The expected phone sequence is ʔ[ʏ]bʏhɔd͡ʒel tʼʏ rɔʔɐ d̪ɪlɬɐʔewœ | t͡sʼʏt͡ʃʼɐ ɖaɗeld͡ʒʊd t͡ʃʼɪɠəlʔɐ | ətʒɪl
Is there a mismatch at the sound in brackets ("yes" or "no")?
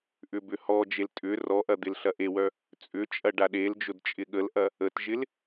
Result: no